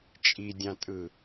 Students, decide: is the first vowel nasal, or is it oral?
oral